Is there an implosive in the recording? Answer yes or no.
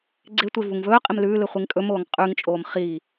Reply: no